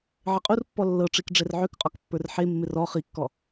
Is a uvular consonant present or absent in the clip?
present